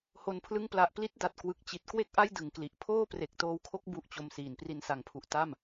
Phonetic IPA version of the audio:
ho˧npʰlɯ˥˩ŋpla˦˥ʔ pli˦˥t̚da˨˩t̚kwɯ˨˩k̚ t͡ɕi˨˩t̚kwe˥˩k̚ʔa˥˩j dɯ˨˩ŋkli˨˩ʔ pʰoː˥˩pre˨˩k̚toː˧wkʰo˦˥k̚ bu˥˩ʔt͡ɕo˧msiː˨˩n pri˨˩nsa˩˦ŋpʰu˨˩ʔ ta˥˩m

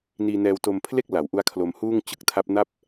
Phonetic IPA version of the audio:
niː˧nɛː˧wto˧mpʰle˥˩k̚ la˩˦wʔu˦˥a̯kʰlo˧mhuː˥˩ŋ t͡ɕɯ˦˥k̚tʰa˦˥p̚na˥˩p̚

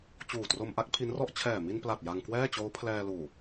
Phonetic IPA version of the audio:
t͡ɕuː˨˩tro˧mʔa˦˥k̚ pʰi˦˥nrɔ˥˩ʔ t͡ɕʰɛː˨˩mi˧npla˨˩t̚ ja˧ŋkwɛː˥˩t͡ɕoː˦˥ pʰlɛː˧luː˨˩

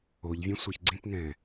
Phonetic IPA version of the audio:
oʎvʲɛ̃ sʷɤçɡ͡ǀĩpŋɛ̃ː

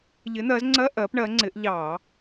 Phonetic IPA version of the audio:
ʎɪ˨˦n̪ɜ˨˦zŋ͡ǀɜ˧˥˧ ʔɜ˨˦pɳɜ˨˦ŋ͡ǀɪ˨˦ʔ ʎɑ˧˩˧

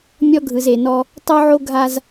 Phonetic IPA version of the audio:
mʲɔ˦ɡʱɯ˨ze˨nɔ˦ | tˤo˦ʕo˦ɡʱa˦z

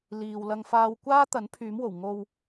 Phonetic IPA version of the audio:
liː˨wlɐ˧ŋfaː˧w kʷaː˥t̪ɐ˨˥n pʰyː˨˥mwo˨˩w ŋo˧w

